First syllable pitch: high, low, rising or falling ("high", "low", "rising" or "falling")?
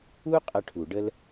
high